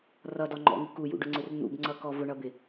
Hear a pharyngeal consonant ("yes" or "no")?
no